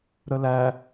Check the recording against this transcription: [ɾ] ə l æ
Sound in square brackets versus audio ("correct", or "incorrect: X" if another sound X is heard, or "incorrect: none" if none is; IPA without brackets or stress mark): correct